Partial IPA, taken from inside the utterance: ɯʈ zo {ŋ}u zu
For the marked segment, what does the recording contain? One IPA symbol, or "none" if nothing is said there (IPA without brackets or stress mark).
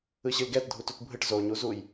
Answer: ɲ